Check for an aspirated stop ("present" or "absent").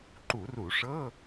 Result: absent